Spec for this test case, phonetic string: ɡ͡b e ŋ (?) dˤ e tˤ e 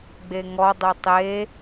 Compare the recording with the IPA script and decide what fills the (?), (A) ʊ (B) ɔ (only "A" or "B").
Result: B